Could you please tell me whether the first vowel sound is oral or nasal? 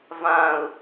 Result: nasal